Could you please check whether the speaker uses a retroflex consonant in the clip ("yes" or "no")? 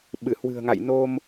no